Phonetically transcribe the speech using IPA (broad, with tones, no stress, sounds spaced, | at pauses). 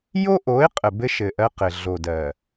j o˦ ʔ o˨˦ ɪ̯ qʼ ə˨ b ɘ˦ ʃ ɘ˨ ʔ ɜ˦ q ɘ˨ ɮ o˨ d ɜ˨